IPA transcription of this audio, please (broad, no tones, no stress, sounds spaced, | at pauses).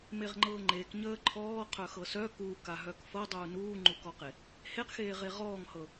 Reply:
m e ʁ ŋ͡ǃ ɤː ŋ͡ǃ e k ɲ əː ǃʰ ɔː qʰ œ x ɤ s œ k uː k a ɦ œ k f ɤ dˤ uː n uː ŋ͡ǃ u k ɔ q e | h e q x eː ʁ e ʁ ɔː ŋ h ɤ